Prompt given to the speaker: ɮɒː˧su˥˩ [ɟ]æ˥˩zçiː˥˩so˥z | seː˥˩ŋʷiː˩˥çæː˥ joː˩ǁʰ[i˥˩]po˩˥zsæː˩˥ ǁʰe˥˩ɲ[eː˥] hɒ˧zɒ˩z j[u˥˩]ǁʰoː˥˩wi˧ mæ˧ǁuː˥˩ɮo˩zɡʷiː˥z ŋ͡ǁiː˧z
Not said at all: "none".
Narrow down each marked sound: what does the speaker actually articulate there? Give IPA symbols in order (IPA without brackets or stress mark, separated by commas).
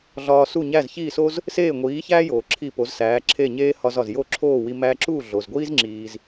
ɲ, i˥˩, eː˥, o˥˩